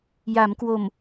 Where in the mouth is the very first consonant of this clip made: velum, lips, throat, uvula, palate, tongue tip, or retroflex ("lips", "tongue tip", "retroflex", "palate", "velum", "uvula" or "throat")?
palate